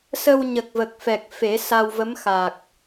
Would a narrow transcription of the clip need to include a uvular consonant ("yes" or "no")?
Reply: no